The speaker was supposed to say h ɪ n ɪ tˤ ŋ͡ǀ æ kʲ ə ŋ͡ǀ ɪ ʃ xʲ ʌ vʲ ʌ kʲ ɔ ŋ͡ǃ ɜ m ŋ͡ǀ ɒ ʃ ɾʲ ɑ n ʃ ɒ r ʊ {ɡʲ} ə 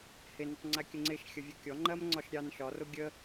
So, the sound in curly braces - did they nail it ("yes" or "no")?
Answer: yes